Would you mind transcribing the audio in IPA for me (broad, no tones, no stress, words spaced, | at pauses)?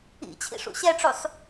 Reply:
ḭt͡ɕʰḭ ʂṵɕɛʈ͡ʂusˤ